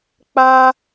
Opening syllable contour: high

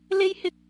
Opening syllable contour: high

